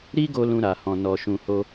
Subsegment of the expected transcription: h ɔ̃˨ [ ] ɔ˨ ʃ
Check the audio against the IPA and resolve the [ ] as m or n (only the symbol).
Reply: n